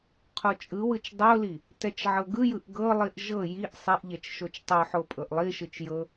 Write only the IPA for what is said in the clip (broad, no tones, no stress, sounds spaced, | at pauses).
qʰ o t͡ʃʼ ɯ w ɯ t͡ʃ dˤ o l i | t ɛ t͡ʃ ʕ ɤ ɡ ɯ j ɯ ʔ ɡ ɤ lˠ i ʔ ʒ ɤ j i ʔ sˤ i ʔ ʎ ɛ t͡ʃ ʃ o t͡ʃ tˤ o ħ o pʼ ɤ ʔ lˠ i ʃ ɯ t͡ʃ j ɤ